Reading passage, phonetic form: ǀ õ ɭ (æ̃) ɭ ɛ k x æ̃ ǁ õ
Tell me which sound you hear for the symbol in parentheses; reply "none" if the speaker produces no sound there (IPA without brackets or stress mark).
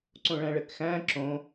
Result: æ̃